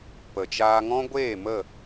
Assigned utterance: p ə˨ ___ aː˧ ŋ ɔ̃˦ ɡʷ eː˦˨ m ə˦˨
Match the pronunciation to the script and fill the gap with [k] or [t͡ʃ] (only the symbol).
t͡ʃ